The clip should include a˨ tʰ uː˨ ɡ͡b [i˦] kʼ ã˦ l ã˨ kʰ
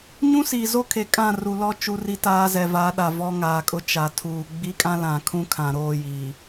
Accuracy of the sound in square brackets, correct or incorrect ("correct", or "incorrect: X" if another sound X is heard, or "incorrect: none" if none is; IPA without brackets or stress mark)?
correct